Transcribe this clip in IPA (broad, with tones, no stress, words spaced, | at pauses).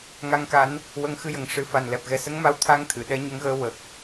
ŋa˧ŋka˧˥n | wə˧ŋxɨ˧˥jə˨˩ŋ ʂɨ˨˩˦fa˨˩n lɛ˨˩p̚ɣɛ˨˩ sə˧˥ŋma˧w t̪ʰa˧˥ŋt̪ʰɨ˨˩˨ ɗɛ˧ɲə˧˥ŋɣəː˧ wə˨˩k̚